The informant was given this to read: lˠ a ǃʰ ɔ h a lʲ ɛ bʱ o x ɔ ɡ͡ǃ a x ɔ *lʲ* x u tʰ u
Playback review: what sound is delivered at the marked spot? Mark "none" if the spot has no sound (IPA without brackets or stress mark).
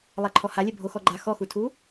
none